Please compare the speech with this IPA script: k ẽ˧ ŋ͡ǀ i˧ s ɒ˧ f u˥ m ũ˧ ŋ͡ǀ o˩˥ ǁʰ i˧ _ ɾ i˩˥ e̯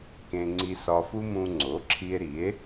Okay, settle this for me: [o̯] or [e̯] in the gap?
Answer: e̯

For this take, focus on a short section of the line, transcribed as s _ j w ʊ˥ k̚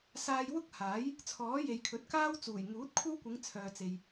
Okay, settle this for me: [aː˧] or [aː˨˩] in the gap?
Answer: aː˧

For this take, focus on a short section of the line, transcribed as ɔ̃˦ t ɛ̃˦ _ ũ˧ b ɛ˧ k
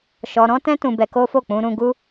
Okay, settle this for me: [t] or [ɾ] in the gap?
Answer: t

